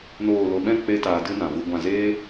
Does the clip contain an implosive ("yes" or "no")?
yes